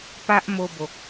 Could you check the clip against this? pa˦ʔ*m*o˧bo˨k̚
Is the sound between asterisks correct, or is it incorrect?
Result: correct